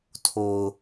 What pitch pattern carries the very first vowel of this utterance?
low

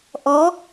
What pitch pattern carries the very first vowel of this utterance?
rising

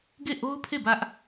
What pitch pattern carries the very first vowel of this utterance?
falling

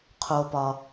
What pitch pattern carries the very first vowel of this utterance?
low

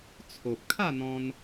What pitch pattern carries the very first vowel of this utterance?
low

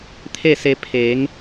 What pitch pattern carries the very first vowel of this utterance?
falling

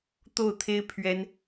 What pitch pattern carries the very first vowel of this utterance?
falling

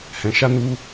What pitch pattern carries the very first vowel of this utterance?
low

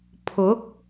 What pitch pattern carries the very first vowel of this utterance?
rising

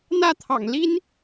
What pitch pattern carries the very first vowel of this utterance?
falling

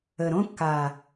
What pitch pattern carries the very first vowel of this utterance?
low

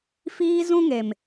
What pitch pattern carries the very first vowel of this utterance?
high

